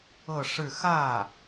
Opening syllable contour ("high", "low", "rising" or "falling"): falling